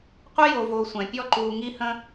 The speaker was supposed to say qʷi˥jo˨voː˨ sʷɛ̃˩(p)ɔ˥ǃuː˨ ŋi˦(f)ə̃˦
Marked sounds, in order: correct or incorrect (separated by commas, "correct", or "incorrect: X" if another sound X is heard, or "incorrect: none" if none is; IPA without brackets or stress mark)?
incorrect: pʲ, incorrect: h